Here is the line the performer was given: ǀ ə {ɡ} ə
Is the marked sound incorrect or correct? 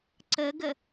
correct